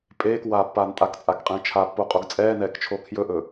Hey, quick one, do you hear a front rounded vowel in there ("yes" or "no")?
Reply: no